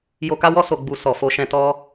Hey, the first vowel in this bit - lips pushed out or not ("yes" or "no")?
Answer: yes